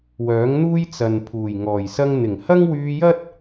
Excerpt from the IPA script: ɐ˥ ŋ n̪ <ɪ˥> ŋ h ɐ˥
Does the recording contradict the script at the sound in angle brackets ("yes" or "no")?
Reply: yes